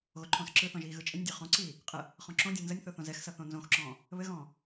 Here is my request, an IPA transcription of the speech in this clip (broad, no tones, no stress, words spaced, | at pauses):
ɣoǃʰõːsǁɯθɔ̃ʒ iːɣɯt͡ʃʼɘnʲdʲœ χɔ̃ǀiː | qʼə | χɔ̃ǁõdʲɔ̃ nzənʲθo θõzɛxsʌ θõnzõxǁɔ̃ː | βɘɣɔ̃ː